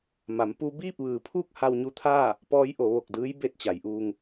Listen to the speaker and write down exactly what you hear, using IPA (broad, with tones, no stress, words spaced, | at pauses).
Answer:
ma˩˧m pu˧ biː˥˨p̚ʋɯː˩˧pʰuː˥˨k̚ ha˧wɲu˧t̪ʰaː˥˨ | pɔː˧˥jʔo˩˧ʋo˧˩k̚dɯː˧˥j be˥˨t̚t͡ɕa˩˧jʔuː˧ŋ